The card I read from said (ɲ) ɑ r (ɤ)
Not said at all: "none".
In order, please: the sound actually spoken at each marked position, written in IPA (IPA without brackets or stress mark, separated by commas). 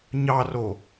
ɲ, o